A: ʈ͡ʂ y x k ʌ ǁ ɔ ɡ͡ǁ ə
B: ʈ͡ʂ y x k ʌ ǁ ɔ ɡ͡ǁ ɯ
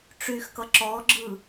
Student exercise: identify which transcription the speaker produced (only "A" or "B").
B